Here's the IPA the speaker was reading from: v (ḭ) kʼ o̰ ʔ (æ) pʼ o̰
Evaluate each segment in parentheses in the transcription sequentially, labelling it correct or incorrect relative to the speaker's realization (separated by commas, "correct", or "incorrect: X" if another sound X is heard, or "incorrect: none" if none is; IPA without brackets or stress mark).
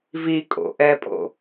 incorrect: i, incorrect: ɛ